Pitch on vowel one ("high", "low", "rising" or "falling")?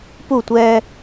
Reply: falling